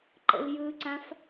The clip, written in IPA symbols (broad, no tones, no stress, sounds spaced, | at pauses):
ǃ ə̰ l j ɯ ǀ ã f